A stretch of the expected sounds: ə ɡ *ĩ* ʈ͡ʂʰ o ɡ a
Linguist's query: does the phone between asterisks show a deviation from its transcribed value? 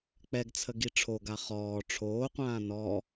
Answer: yes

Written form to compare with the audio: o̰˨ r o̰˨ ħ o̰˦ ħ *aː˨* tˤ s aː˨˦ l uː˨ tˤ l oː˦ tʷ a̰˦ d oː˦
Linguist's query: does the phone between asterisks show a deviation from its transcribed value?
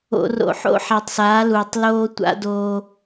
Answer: yes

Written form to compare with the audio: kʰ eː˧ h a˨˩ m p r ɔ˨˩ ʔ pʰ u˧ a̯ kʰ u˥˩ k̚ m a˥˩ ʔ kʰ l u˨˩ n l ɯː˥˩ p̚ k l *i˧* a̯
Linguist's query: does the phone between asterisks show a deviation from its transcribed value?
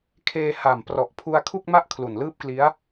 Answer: yes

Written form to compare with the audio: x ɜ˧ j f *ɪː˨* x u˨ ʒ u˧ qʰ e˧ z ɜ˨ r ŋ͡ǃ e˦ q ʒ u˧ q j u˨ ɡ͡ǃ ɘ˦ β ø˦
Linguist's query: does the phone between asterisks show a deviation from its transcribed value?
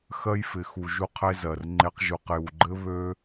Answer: yes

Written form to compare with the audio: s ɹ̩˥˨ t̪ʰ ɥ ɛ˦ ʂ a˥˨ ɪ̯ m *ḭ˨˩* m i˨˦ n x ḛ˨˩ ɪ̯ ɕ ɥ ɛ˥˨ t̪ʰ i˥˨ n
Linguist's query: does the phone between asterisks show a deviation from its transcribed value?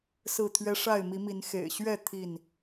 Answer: yes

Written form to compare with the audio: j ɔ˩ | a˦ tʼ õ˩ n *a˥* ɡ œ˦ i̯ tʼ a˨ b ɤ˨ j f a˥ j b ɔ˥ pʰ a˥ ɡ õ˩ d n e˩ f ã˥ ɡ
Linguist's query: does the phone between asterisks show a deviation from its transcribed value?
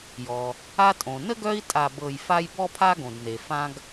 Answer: yes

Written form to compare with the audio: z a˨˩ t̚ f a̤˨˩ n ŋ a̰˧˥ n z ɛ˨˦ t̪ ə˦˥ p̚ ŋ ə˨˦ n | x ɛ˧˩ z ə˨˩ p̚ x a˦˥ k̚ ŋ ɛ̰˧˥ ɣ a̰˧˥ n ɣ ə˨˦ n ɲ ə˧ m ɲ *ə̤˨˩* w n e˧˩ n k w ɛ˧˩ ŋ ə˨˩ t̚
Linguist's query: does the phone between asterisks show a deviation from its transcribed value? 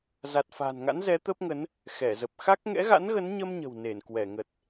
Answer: no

